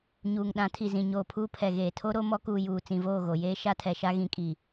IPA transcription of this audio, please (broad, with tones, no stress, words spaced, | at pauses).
ɲuː˨ŋɗã˨˦tʰi˨ zĩ˨ɲoː˨pʰuː˦ pʰɛ˨ɣeː˨tʰo˦ɾo˦ mɔ˦kuː˨ juː˨ t͡sĩ˨voː˦˨ ɣo˨jeː˦ ʃa˦tʰɛ˨ʃa˦ ɣĩ˨kʼi˨